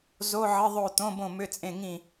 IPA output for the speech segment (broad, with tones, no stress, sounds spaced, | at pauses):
z o˧˥˧ ʕ ə˧˥˧ ðˤ o˥˨ t̪ õ˧˥˧ b õ˥˨ m ʏ˧˥˧ t͡sʼ ẽ˥˨ ŋ ĩ˥˨